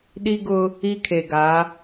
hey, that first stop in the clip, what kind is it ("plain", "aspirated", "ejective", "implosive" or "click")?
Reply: implosive